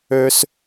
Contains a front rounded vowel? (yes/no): yes